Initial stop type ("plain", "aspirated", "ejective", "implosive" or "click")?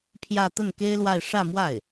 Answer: aspirated